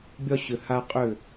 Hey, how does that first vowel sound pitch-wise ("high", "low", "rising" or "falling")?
high